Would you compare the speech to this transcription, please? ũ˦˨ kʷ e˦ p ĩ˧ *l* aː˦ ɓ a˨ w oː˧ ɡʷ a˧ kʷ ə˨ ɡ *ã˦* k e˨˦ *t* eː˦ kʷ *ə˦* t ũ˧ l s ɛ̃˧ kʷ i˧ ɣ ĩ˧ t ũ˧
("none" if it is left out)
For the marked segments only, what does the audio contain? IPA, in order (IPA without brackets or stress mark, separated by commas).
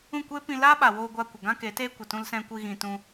l, ã˦, t, ə˨